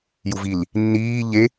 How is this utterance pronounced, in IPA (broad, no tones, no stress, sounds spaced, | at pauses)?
j u v i l | nː iː ʎ e